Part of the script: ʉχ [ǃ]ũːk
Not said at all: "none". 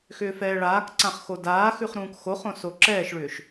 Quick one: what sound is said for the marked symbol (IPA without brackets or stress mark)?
ɾ